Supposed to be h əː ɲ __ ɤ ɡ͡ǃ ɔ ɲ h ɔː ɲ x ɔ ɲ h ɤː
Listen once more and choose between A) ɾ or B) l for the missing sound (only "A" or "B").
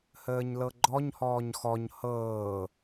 B